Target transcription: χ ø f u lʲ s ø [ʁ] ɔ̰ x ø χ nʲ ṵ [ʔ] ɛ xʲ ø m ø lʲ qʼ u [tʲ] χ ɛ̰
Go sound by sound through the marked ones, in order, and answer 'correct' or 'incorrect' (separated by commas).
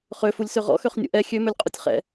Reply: correct, correct, correct